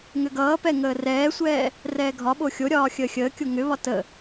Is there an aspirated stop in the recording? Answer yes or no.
no